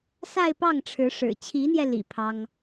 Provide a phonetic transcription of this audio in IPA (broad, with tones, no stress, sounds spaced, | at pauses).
s a˥˧ ɪ̯ p ɑ˥˩ ŋ ʈ͡ʂʰ ɻ̩˧˥ ʂ ɻ̩˨˩ t͡ɕʰ i˧˥ n̪ j ɛ˧ l ḭ˨˩ pʰ ɑ˥ ŋ